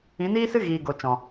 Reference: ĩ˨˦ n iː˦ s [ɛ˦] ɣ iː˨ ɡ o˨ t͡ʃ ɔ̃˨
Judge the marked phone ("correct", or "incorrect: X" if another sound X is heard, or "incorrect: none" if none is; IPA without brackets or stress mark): incorrect: ɨ˦